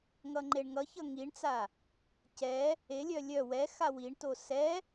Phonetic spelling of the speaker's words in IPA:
ŋ ʌ ŋ͡ǃ e ɳ ŋ ʌ ç ʌ ŋ i ɳ t͡s a | c ɛ | e lʲ œ lʲ œ w ɛ x a w i ɳ t o s ɛ

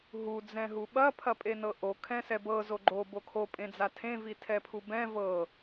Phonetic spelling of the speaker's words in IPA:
ɦ u d͡z ɛ̃ ɦ u ɓ ɐ pʰ ɐ pʼ e n ɤ ʔ o kʰ ɛ̃ s ɛ b ɤ z o ɡ͡ǃ o b o kʰ o pʼ ẽ d͡z a tʰ ẽ v i tʰ ɛ pʰ u b ɛ̃ v ɤ

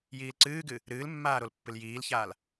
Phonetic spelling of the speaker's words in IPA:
j iː l ǀ ɨː ɡ ɨ | ɾ ɨː l mː aː ɾ o l pː ɨ l j iː l ç aː l

